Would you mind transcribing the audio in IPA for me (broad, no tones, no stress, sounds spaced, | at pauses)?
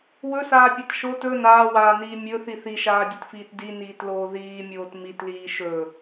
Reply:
w ɵ s aː pʲ a t ʃ o t ɵ n aː w aː n iː mʲ ɵ θ i θ i ʃ aː dʲ ɵ t f iː t d i n iː t l oː ð iː mʲ oː t m i t l iː ʃ ɵ